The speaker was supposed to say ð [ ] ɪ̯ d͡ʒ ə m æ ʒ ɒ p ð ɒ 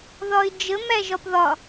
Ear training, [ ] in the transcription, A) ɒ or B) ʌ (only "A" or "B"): A